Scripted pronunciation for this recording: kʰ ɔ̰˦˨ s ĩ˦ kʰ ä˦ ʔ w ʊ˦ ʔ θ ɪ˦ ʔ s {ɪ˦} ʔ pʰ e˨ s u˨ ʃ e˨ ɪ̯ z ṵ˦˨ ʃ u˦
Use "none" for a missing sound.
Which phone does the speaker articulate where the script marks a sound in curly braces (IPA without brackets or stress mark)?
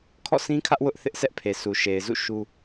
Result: ɛ˦